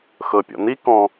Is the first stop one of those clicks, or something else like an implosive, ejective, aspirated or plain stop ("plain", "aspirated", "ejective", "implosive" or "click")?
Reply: plain